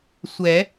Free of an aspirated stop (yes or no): yes